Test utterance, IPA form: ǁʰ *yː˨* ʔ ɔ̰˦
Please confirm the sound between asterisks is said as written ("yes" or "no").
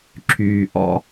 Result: yes